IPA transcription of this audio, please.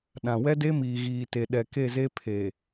ɗ ã˨ w ɛ˦ d e˦ m iː˨ ɣ iː˨ t e˨ ɗ ɛ˨ k e˦˨ z e˦ pʰ e˨

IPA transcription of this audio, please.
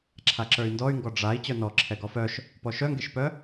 ǁʰ a ǁ ə˞ y̯ n d ɔ y̯ ŋ ɡ ɔ ɖ͡ʐ a i̯ t͡ɕ œ n ɔ ǁʰ ɛ ɡ ɔ f œ ʃ | p ɔ ʃ œ ŋ ɡ e ʃ p œ

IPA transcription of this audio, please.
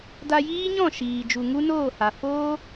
d a˧ j iː˦ ɲ ɔ̃˦˨ ʃ iː˨ d͡ʒ u˨ ŋ u˦ n oː˦˨ h a˨ f oː˦

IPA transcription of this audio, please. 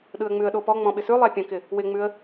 ɗ ɯ ə̯ ŋ͡m ʉ ə̯ ɗ o p ɔ ŋ͡m ɔ̃ ɓ ɪ s ʉ lˠ ɛ pʲ ə̃ k ɪ | w ɪ ŋ͡m ʉ ə̯

